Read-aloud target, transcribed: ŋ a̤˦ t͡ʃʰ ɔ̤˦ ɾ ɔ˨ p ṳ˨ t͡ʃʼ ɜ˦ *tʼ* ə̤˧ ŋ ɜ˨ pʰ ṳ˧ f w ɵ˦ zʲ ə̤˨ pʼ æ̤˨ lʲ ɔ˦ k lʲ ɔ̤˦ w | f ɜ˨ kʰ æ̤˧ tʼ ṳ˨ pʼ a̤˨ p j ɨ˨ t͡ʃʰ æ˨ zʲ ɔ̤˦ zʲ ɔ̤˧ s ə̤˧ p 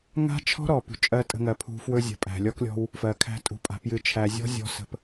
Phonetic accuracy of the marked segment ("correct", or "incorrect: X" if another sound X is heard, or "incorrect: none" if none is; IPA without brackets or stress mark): correct